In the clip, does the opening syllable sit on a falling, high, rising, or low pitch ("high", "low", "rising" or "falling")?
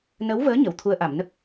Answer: rising